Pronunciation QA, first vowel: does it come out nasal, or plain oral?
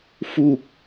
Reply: oral